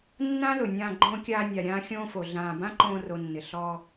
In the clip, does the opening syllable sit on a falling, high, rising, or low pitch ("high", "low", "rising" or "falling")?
high